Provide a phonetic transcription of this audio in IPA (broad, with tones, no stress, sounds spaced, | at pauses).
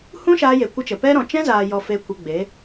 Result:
h ũ˦ ʃ aː˧ j e˨ kʷ ə˦ t͡ʃ ə˨ p ɛ˦ ɾ ɔ̃˨ t͡ʃ ɛ̃˦ z aː˨ j ɔ˨ f e˧ kʷ ə˧ ɡ͡b e˨˦